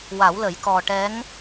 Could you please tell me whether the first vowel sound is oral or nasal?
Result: oral